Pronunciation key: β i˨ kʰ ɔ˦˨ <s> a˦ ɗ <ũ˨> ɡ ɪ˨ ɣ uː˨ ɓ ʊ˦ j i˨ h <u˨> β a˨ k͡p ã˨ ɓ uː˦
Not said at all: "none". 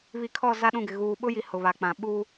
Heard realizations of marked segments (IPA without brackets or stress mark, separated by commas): z, ũ˦˨, ʊ˨